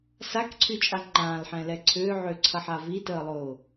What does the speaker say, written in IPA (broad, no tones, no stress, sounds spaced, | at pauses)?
s a k ǀʰ y t͡ʃʼ a ŋ͡ǃ ãː l ħ ɛ̃ l ɛ ǀʰ ʏː ʕ ʏː ǀʰ ɐ ħ a v i t əː lˠ ʊː